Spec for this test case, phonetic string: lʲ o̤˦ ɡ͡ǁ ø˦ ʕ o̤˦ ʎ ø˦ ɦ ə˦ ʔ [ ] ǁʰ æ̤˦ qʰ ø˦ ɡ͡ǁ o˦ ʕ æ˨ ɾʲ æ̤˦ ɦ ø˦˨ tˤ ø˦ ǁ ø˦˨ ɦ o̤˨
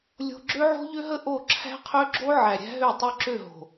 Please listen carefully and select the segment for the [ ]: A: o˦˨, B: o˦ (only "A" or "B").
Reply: A